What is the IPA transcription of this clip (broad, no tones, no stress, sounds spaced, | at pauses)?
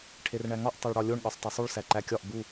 ʈʰ e r ɳ æ ŋ ɒ ʔ tˤ o ɭ ɽ ɒ lʲ o ɳ ɠ ɒ sˤ tˤ o sˤ u ɭ s æ ǃ æ kʲ ɒ ʔ b u